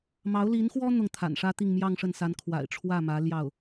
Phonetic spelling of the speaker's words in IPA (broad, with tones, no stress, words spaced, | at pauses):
mɑ˧˥ʊ̯li˧˥nxwɔ˥ n̪ʊ˥˩ŋt̪ʰa̰˨˩nʂä˥t̪i˥˧ŋ mjɑ˥˧ŋʂə˥˩nsa˧˥n kʰwa̰˨˩ɪ̯ʈ͡ʂʰwä˥˩mä˧˥ ljɑ˥˩ʊ̯